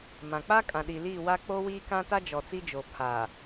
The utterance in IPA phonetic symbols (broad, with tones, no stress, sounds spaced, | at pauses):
m ã˨ k͡p a˦ kʼ ã˨ ɗ i˨ l iː˦˨ w a˦ k͡p o˦ w iː˦ k ã˦ t a˦ d͡ʒ ɔ˨ t͡s i˦ d͡ʒ o˨ pʰ aː˨